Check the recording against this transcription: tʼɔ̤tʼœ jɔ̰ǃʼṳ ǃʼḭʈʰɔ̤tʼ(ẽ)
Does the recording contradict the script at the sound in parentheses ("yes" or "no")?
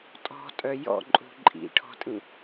yes